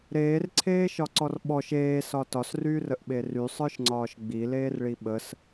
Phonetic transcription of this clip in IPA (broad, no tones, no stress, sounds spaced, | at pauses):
ɾ eː r ǀʰ eː ʃ ɒ ǀ ɔ r ɓ ɔ ʃ eː s ɒ t ɒ s r yː r ə ʔ ɓ e r y sˤ ə˞ ʃ ŋ͡ǀ ɒː ʃ ɡ͡b i l eː r ɭ i ɓ ə s